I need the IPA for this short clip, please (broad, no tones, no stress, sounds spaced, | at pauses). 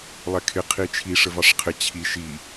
lˠ ɛ kʰ ɪ qʰ i t͡ʃʰ i ʂ ə v ɑ ʂ qʰ ɪ t͡ɕʰ i ʃ i